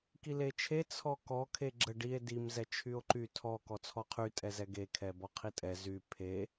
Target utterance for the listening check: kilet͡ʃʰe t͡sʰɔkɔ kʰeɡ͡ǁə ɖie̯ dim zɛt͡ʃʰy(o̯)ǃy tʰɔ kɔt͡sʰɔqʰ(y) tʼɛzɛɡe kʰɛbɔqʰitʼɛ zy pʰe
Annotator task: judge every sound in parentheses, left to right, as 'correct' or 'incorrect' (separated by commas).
correct, correct